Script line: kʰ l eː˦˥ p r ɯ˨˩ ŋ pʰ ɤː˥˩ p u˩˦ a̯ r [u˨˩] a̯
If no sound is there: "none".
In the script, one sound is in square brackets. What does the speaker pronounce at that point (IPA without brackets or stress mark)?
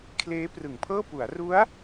u˦˥